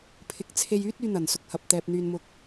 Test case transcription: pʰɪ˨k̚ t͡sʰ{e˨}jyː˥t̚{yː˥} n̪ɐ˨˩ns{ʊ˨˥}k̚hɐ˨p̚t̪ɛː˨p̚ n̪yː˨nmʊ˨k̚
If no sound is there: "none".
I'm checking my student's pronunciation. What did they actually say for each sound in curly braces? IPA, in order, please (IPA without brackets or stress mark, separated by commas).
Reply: e˧, yː˧, ʊ˧